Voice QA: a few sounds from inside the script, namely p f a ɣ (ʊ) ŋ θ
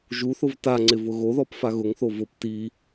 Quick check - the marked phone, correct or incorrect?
correct